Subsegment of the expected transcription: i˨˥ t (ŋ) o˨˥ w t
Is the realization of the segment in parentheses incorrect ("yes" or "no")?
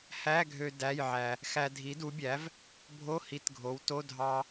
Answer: yes